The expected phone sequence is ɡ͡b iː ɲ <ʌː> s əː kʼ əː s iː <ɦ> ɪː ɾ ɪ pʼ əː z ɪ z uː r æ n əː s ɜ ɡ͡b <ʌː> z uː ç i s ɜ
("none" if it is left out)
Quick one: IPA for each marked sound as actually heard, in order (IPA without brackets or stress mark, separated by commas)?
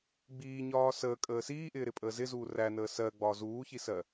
ɒː, ʔ, ɒː